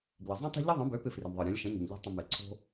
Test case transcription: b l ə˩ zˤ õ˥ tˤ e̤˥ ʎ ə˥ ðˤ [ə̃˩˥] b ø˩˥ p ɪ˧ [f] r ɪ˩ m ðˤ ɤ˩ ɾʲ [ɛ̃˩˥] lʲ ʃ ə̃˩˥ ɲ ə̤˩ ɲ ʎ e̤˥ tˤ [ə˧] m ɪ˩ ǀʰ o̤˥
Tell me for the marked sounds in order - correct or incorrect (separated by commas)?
correct, correct, correct, incorrect